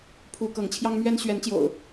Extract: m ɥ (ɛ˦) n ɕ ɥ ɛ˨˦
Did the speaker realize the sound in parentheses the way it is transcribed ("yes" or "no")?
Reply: yes